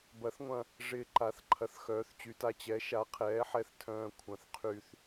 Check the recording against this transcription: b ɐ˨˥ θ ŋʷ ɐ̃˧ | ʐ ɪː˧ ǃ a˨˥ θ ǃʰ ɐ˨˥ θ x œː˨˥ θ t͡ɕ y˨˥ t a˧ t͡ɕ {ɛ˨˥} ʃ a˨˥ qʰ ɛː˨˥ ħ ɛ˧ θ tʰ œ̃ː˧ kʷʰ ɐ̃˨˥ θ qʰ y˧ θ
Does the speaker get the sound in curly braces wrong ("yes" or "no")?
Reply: no